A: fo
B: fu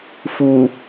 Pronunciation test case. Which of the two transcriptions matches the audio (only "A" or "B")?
B